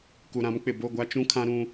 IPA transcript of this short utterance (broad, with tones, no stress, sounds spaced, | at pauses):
k u˨ ɾ ã˨˦ m k͡p ɪ˨ b o˦˨ ɡʷ a˦ t͡ʃ ũ˦ kʰ ã˦ ɾ ũ˦